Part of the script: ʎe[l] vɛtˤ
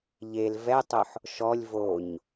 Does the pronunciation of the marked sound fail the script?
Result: no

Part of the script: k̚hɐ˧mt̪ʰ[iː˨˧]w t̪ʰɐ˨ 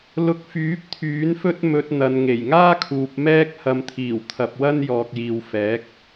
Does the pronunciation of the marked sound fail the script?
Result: yes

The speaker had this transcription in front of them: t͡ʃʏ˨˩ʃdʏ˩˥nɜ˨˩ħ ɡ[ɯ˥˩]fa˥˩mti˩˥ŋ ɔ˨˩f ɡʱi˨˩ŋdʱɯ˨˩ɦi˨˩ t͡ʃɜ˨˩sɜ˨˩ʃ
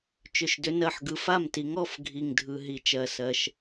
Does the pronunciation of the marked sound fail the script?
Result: yes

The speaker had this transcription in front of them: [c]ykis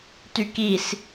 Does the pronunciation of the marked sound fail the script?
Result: yes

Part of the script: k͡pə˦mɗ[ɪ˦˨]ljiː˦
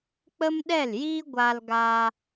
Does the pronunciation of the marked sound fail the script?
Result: yes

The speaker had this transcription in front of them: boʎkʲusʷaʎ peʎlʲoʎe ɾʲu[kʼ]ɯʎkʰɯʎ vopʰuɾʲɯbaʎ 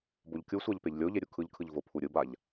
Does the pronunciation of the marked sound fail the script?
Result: yes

